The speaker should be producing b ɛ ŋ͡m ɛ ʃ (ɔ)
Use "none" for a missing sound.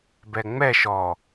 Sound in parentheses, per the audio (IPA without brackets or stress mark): ɔ